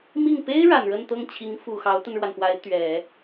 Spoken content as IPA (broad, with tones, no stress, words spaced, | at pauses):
mi˥˩ŋ pe˥ɪ̯ ɻa˨˩nɻə˥˧nt̪ɤ˥˩ŋt͡ɕʰi˧˥ŋ fu˨˩ xɑ˧˥ʊ̯t̪ə˧nɻwa˩npwa˧˥ɪ̯ t̪ɥɛ˨˩˦